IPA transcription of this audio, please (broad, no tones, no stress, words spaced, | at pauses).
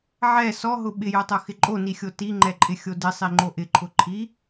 ʕɛ sɔɦʊ ɓɪjotˤoxɪ ǃʼonixʲo tiŋ͡ǃɛǃʼɪxʲo dɪsˤiŋ͡ǃo ʔɪǃʰʊ ǃʰi